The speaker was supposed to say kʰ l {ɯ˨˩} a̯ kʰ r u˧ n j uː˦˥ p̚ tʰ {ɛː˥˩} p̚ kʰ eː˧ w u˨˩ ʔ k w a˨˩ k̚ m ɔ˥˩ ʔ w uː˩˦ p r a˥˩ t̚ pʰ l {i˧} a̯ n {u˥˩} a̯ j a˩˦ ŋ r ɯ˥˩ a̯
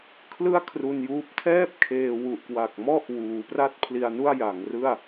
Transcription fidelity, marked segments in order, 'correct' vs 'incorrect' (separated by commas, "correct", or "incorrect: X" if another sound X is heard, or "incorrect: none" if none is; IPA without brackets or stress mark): incorrect: ɯ˥˩, correct, correct, correct